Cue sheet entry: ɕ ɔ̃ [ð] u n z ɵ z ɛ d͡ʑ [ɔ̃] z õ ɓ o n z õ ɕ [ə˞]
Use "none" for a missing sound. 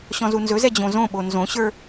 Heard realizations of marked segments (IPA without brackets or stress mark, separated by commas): z, õ, ə˞